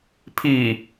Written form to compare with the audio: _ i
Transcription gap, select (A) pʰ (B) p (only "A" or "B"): A